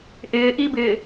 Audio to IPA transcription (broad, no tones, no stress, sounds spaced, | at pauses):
ʔ ɪː ʔ i b ɪː